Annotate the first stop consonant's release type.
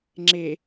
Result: click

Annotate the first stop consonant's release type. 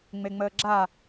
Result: click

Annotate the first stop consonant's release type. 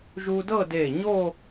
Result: plain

